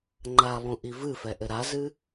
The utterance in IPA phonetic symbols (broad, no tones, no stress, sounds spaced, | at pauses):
ŋ͡ǃ a lˠ ũ ʔ i v ɨ f ɛ ʔ ɘ ɾ a z ɨ